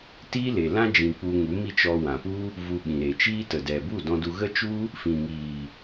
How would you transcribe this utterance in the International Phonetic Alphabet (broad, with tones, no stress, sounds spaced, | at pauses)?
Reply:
t iː˦ l e˨ l ã˦ d͡ʒ ĩ˨ k͡p u˧ ŋ u˨˦ m i˦˨ t͡ʃ ɔ˧ w ã˨ p u˦ | v u˧ ɓ ĩ˨ ɾ e˨ t͡ʃ iː˦ t ə˨ d ɛ˨ b u˦˨ d ɔ̃˧ d u˧ ɣ ə˦ t͡ʃ u˦ | f ĩ˨ ŋ iː˨